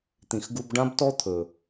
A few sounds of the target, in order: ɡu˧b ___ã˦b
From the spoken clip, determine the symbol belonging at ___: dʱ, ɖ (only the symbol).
ɖ